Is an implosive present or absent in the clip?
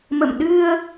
present